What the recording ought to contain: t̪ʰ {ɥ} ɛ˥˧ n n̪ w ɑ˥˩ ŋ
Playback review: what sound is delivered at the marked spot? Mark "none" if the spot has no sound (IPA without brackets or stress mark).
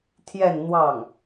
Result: j